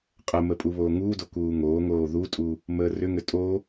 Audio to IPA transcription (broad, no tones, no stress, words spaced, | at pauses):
qʼəmə pʼuβoːŋuːdo kuːŋoːŋoː ðutʼu | məːrʏŋʏ tʼo